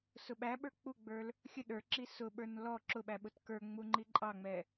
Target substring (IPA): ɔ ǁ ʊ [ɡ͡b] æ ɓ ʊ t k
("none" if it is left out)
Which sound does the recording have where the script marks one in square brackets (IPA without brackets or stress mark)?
ɓ